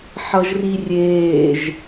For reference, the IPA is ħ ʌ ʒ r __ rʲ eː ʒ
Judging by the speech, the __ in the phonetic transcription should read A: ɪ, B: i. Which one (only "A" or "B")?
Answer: B